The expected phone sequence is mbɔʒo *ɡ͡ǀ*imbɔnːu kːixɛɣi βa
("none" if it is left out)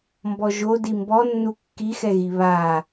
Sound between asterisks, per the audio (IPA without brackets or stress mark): d